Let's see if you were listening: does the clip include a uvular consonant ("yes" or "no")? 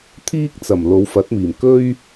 no